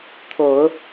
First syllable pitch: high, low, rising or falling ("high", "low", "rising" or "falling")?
low